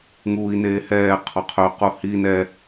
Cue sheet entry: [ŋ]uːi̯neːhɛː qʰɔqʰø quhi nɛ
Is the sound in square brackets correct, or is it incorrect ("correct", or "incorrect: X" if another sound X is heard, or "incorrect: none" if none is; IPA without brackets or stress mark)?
correct